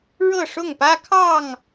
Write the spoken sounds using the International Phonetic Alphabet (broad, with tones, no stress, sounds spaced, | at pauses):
ɻ ɤ˥˨ ʂ ʊ˥˨ ŋ p ä˦ kʰ ɑ˥˨ ŋ